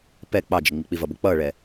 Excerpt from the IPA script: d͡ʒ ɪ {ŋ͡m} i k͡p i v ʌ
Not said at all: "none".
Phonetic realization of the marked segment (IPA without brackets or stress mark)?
ŋ͡m